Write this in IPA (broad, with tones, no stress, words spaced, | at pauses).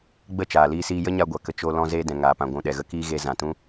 ɡ͡bə˦˨t͡ʃaː˨liː˧siː˧ jə˦ɲa˧ɡʷa˨ kə˧ t͡ʃo˦ lɔ̃˧zeː˧dɛ̃˨ ŋaː˨pã˨ ɡʷũ˨ ɗɛ˨ɣə˦kiː˦ɣe˧ zã˨tũ˦